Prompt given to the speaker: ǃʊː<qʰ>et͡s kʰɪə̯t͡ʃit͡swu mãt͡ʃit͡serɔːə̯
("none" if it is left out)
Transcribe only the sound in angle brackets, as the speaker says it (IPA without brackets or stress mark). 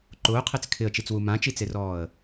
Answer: qʰ